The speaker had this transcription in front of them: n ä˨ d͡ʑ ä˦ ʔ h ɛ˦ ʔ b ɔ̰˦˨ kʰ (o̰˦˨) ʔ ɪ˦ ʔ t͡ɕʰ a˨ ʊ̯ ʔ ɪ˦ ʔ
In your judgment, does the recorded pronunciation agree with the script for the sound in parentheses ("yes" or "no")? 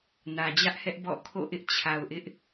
yes